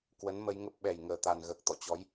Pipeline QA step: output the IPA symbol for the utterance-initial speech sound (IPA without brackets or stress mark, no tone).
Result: k